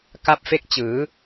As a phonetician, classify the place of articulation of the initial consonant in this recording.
velar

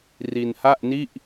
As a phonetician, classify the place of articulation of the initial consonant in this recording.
alveolar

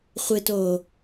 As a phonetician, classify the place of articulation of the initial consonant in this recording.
uvular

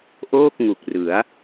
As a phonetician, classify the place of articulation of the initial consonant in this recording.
glottal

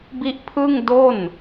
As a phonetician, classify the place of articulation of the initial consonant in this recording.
labial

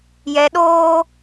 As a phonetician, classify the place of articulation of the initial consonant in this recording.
palatal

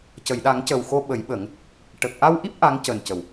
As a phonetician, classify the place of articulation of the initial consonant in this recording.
palatal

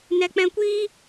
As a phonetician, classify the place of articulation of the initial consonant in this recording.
alveolar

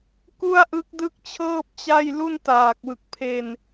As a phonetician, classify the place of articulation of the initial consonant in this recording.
velar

